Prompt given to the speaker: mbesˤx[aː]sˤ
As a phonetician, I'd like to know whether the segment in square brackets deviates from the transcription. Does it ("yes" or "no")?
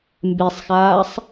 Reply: no